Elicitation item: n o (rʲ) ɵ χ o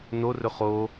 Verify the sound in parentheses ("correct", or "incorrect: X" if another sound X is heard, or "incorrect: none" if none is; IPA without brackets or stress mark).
incorrect: r